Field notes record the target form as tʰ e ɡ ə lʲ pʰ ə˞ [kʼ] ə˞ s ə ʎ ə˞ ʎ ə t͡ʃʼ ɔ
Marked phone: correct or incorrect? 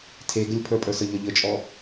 incorrect: pʼ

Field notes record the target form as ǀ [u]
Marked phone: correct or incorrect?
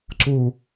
correct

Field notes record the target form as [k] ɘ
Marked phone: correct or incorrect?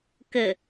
correct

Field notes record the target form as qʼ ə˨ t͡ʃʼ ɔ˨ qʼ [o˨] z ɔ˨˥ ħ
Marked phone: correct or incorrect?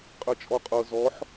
incorrect: ɤ˨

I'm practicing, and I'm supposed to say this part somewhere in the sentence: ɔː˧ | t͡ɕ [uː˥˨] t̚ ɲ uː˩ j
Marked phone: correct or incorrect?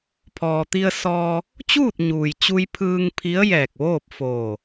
correct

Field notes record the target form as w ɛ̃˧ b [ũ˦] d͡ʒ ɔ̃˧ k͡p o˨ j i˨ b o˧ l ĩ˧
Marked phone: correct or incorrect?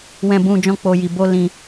incorrect: ũ˧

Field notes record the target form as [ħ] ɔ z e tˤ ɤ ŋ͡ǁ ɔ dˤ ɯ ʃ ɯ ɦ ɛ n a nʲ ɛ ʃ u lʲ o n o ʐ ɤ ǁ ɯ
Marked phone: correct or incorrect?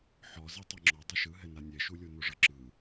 correct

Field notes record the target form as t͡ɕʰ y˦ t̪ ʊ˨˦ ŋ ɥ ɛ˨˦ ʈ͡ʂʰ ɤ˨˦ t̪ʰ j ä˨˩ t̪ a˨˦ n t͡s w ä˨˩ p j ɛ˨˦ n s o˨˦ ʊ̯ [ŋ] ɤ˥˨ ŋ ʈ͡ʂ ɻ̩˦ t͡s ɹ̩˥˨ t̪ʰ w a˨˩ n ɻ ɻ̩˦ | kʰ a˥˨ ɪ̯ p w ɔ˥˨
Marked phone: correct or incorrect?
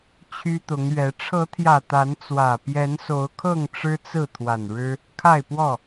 incorrect: kʰ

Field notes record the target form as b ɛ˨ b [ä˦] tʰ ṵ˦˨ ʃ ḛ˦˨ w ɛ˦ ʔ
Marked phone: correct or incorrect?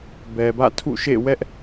incorrect: ä̰˦˨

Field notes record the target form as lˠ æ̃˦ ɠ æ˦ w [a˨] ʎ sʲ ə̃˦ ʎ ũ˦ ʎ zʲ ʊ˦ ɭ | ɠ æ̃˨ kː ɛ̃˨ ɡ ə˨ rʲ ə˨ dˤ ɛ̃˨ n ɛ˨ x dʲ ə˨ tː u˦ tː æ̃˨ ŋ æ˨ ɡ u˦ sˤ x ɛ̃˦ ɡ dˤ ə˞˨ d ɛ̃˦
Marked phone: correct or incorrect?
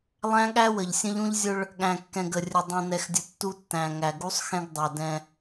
incorrect: ə˨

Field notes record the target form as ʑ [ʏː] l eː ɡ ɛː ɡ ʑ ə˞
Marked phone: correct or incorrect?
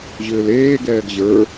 correct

